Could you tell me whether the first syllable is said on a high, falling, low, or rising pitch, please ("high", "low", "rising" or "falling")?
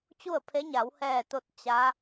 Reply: falling